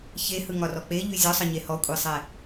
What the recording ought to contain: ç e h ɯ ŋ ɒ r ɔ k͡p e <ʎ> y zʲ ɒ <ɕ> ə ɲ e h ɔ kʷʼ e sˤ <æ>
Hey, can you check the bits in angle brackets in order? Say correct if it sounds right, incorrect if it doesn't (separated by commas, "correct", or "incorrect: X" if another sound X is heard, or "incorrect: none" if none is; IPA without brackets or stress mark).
correct, incorrect: sˤ, incorrect: ɛ